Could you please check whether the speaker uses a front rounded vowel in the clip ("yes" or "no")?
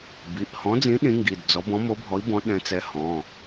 no